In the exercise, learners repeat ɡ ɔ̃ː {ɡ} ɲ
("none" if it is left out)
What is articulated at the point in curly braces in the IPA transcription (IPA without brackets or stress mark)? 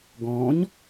none